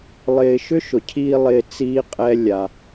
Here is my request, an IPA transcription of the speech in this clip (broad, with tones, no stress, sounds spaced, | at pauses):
lˠ ɪː˧ ʃ ʏ˦ ʃ ʊ˨ cʰ iː˧ lˠ ɪː˧ t͡s iː˦ qʼ ɛ˦ lʲ a˧